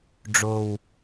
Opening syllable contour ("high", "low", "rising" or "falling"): low